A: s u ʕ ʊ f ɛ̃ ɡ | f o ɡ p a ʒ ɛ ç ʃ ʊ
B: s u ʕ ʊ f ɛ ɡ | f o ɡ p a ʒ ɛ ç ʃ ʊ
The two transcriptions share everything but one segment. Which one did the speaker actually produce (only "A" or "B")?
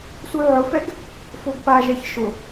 B